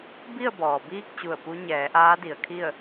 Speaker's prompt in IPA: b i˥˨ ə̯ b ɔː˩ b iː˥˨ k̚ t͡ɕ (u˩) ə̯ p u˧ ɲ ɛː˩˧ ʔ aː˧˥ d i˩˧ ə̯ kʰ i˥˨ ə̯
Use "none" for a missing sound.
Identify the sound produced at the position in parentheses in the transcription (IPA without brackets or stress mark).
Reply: u˧˩